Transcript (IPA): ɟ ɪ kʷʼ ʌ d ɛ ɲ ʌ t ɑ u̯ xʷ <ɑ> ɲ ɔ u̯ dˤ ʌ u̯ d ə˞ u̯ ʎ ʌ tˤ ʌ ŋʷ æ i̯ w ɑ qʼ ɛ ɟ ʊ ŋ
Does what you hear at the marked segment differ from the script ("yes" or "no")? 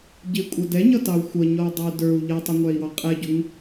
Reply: yes